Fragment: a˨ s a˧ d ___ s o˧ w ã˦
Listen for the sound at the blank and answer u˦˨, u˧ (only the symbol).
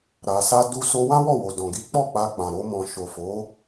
u˧